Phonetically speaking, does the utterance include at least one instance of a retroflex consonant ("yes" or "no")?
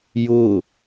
no